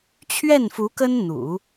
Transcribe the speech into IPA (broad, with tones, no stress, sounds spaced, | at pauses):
t͡ɕʰ ɥ ɛ˥˩ n f u˧˥ k ə˥ n n̪ ṵ˨˩˦